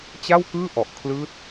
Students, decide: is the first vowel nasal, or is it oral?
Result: oral